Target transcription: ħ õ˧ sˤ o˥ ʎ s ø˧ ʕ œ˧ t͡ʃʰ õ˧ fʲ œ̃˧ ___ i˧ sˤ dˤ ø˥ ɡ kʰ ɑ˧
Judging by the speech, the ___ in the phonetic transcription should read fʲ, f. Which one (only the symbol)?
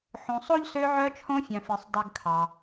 f